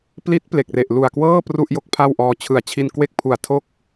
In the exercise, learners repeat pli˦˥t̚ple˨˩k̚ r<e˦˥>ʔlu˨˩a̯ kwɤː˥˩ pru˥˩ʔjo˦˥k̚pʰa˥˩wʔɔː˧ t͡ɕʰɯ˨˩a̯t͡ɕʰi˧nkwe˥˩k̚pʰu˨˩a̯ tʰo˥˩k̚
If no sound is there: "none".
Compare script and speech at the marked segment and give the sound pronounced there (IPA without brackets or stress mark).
e˨˩